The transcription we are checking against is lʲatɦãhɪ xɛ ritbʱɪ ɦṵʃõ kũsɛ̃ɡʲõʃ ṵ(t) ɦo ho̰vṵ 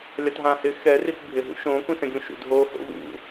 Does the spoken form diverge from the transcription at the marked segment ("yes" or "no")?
yes